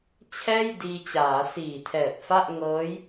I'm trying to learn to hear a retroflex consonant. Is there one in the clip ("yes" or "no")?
no